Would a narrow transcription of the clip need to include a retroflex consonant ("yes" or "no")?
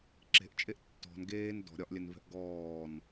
no